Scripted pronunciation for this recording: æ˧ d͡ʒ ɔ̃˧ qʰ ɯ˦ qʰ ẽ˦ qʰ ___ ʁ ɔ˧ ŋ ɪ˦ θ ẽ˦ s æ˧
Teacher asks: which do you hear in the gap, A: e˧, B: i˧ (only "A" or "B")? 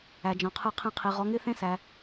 B